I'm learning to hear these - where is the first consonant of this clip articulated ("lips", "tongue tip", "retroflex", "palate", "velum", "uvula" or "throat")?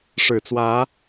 retroflex